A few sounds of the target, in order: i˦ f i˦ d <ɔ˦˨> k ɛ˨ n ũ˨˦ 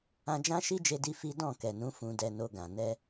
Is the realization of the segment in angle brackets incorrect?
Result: yes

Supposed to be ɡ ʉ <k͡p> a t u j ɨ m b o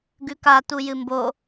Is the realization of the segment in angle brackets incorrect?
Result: yes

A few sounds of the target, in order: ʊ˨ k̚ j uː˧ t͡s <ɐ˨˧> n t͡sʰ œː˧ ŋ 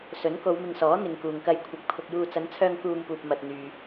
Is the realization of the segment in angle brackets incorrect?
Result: no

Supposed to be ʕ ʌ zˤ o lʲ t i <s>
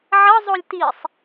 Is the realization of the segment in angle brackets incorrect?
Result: yes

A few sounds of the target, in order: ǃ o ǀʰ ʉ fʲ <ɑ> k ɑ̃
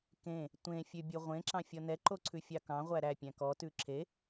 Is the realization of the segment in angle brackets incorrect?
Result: no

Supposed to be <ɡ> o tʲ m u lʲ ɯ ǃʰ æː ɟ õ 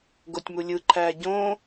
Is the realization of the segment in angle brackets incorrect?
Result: no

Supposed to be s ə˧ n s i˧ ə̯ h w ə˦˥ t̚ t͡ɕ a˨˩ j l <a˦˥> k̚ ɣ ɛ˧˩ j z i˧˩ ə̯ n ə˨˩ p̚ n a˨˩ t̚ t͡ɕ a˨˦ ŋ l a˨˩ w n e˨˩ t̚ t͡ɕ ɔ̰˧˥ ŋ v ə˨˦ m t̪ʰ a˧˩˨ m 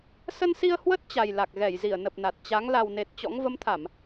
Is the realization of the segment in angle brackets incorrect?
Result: yes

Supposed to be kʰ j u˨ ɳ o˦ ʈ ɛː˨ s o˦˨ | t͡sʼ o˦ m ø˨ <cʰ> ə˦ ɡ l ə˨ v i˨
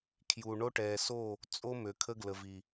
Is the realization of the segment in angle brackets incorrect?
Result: yes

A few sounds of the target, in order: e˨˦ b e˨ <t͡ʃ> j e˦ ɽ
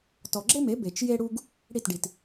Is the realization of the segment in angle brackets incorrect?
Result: no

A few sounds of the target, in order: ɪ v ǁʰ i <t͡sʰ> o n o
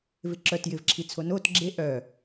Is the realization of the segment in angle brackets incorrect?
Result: no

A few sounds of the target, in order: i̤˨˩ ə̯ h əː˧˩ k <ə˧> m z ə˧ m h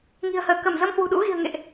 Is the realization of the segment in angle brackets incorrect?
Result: yes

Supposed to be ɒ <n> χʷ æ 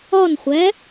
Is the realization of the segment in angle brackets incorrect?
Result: no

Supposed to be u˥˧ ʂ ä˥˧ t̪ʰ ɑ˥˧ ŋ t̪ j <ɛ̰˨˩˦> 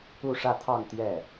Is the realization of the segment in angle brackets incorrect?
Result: yes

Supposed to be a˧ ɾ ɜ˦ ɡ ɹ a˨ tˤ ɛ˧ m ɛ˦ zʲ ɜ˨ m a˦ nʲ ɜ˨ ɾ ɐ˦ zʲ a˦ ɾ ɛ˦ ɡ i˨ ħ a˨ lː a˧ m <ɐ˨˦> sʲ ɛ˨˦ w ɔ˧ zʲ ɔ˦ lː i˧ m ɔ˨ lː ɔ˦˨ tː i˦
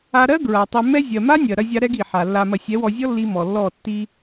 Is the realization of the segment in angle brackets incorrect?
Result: yes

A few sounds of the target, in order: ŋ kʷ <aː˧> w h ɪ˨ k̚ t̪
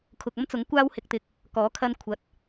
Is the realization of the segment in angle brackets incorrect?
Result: no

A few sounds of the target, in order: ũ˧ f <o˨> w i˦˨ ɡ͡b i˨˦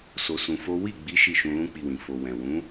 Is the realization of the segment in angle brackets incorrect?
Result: yes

